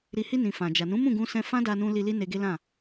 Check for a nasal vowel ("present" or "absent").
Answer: present